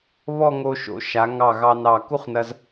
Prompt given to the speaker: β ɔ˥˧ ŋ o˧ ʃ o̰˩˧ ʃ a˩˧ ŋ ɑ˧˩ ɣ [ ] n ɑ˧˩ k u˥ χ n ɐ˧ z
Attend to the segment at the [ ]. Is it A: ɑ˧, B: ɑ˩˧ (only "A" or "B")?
A